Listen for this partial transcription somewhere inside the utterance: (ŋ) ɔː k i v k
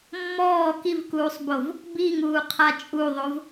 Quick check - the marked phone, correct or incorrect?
incorrect: mː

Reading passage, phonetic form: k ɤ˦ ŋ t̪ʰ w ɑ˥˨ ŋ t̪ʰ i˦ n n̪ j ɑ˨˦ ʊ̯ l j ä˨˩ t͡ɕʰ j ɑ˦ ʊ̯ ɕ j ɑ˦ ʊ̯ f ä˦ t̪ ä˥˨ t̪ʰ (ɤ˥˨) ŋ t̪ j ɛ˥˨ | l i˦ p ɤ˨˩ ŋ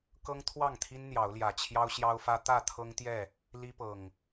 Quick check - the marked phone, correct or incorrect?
incorrect: ɤ˦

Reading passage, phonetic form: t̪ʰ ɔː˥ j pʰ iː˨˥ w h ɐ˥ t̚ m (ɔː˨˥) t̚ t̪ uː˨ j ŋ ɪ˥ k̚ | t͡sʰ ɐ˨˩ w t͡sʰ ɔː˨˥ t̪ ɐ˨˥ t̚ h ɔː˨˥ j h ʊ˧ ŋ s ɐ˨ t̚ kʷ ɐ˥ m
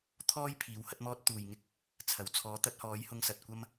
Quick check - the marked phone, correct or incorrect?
incorrect: ɔː˥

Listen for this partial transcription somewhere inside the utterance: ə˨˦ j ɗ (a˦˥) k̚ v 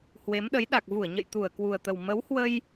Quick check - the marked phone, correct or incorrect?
incorrect: a˨˩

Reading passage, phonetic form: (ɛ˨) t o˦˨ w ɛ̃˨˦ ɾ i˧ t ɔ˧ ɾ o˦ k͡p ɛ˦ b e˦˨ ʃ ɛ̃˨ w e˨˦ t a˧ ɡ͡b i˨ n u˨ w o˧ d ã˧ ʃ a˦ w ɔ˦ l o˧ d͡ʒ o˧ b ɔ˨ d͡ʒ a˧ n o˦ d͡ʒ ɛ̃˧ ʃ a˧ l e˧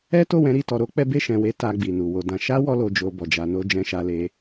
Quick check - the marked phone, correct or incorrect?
incorrect: ɛ˦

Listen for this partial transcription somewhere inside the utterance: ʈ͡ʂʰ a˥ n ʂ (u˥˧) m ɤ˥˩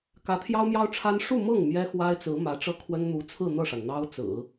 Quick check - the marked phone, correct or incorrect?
correct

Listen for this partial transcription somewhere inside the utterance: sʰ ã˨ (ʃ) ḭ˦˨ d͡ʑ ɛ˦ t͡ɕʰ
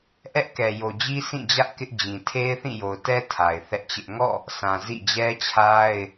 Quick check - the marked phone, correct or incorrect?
incorrect: z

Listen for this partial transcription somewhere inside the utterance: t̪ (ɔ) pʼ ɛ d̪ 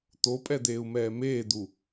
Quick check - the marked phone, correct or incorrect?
incorrect: o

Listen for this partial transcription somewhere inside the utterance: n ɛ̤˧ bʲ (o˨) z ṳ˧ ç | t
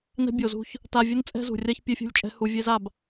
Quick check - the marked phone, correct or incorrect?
correct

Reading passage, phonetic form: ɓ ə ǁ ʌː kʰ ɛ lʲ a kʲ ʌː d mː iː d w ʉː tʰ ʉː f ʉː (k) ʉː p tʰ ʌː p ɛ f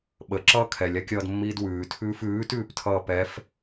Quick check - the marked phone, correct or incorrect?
incorrect: t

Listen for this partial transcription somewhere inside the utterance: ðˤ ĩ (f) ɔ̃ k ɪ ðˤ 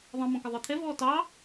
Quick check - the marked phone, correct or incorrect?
incorrect: m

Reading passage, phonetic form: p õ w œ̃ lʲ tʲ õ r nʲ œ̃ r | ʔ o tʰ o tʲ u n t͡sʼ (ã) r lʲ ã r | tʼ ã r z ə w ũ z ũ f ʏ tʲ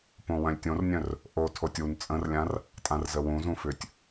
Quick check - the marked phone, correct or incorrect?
incorrect: ə̃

